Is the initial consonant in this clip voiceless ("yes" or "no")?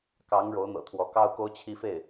yes